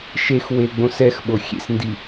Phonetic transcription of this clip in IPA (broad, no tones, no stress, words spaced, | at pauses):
ʃexweɡ͡bõs ɛxɓo xʲḛsndi